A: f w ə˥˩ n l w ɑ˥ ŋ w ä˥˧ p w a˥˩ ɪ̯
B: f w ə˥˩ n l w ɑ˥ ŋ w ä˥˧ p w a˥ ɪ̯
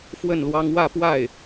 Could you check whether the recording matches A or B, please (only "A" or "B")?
A